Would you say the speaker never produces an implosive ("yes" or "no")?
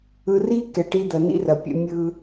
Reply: yes